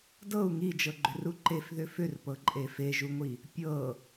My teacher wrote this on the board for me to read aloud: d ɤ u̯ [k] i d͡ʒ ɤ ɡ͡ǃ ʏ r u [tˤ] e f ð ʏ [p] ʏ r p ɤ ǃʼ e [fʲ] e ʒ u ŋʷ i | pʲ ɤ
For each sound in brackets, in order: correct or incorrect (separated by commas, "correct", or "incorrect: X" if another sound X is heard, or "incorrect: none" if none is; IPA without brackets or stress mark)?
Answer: incorrect: ŋ, incorrect: ǃ, incorrect: f, incorrect: f